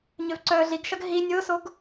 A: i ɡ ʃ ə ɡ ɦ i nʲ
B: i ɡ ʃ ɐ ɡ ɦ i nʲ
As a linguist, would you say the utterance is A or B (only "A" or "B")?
B